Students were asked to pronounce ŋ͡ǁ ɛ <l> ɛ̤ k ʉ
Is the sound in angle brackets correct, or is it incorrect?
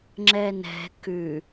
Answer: incorrect